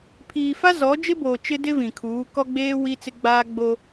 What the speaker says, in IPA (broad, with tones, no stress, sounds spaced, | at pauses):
pʰ iː˨ f a˦ z ɔ˨˦ d͡ʒ ɪ˦ b oː˨ t͡ʃ ɪ˦ d ɪ˦ v ĩ˨ kʰ uː˨˦ k ɔ˦ ɡ͡b eː˦ w i˦ t͡s ɪ˦ ɡ͡b aː˦ ɡ͡b o˦